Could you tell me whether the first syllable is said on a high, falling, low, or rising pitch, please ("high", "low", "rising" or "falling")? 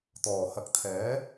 low